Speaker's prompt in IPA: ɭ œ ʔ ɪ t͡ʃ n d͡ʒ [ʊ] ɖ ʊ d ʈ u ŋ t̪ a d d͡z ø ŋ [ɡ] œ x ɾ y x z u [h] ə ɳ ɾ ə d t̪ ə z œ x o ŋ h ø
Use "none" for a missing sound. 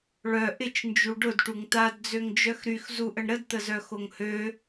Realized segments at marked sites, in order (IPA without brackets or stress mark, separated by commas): u, d͡ʒ, ʔ